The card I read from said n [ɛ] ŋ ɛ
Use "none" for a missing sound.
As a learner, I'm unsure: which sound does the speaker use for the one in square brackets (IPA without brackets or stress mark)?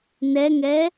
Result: ɛ